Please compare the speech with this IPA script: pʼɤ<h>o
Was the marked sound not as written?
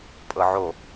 yes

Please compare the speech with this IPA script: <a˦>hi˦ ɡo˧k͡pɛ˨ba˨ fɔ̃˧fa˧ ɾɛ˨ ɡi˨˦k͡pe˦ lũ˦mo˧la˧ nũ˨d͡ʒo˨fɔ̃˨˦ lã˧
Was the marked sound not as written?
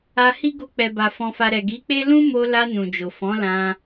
yes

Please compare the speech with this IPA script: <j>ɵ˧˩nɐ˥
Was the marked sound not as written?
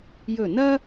no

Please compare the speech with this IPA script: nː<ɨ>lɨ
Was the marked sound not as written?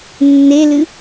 yes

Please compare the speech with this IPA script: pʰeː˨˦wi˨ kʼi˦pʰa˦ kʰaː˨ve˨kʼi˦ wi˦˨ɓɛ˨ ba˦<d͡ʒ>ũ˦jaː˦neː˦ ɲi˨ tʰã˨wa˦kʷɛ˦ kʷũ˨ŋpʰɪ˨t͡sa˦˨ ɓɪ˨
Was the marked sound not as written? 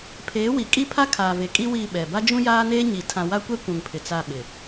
no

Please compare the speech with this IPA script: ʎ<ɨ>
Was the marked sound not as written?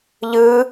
no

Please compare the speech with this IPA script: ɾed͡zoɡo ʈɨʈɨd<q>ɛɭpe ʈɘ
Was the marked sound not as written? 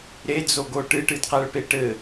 no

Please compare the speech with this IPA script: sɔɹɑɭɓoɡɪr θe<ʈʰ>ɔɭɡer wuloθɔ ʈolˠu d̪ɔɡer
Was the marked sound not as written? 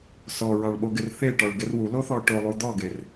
yes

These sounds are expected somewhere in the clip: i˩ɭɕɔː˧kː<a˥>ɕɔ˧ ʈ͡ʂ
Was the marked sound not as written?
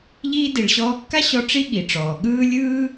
no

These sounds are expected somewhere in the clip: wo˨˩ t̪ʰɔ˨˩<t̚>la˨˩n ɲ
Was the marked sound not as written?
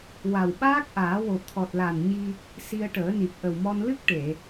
no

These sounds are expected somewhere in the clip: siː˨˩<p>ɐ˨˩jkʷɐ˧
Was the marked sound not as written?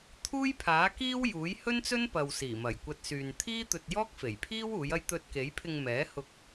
yes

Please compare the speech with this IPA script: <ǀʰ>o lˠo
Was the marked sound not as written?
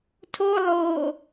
yes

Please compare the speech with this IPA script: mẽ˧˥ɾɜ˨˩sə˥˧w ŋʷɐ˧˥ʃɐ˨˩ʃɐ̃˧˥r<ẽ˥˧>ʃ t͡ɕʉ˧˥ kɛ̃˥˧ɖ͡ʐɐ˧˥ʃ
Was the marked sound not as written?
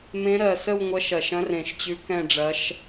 yes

